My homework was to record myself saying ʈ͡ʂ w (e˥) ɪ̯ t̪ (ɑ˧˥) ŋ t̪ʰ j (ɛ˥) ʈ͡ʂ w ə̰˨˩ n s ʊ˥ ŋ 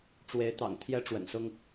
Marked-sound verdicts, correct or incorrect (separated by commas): incorrect, incorrect, correct